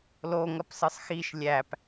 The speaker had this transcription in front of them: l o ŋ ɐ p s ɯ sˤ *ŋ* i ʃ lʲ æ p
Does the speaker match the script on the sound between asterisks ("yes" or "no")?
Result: no